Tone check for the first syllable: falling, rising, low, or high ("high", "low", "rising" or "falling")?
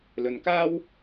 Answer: low